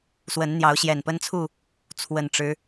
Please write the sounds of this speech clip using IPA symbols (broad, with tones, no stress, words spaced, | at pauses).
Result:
swə˨˦nn̪jɑ˨˦ʊ̯ ɕjɛ˨˩npə˦nt͡sʰu˥˨ | t͡sʰwə˨˩nʈ͡ʂɻ̩˦